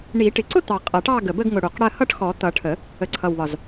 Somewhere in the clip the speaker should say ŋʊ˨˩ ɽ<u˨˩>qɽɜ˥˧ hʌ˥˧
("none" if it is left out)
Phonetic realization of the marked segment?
u˨˩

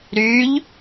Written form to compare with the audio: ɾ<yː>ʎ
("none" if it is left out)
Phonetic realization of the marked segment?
yː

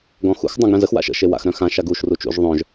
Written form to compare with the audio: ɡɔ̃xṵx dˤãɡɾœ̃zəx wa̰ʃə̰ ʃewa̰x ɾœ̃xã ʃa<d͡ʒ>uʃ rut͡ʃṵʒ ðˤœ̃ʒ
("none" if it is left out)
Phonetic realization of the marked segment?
ɡ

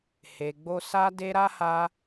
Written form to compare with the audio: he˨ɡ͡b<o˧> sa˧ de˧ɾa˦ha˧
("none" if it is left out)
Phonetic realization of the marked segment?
o˧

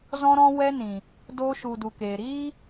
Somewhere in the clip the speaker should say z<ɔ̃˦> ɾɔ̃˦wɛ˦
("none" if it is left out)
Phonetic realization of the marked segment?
ɔ̃˦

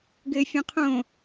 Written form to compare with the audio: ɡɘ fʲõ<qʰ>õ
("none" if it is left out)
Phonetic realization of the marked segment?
qʰ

